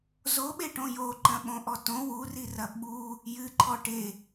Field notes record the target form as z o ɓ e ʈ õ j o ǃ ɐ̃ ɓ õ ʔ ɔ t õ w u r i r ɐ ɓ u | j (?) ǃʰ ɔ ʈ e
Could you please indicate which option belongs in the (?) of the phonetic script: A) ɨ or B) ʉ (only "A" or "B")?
A